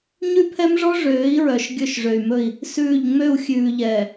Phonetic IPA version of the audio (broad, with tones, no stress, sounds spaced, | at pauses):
ɲ ʉ˦ pʰ ɛ˦ m ʐ ɔ˦ ʐ øː˨˦ i̯ ɹ œ˨ ʃ ɡʲ ɵ˦˨ ʃ ʐ ø˨ y̯ m ɵ˦˨ i̯ | s ʉː˦˨ ʎ ŋ͡m ø˦˨ u̯ xʲ ʉː˨ ʎ ɛː˨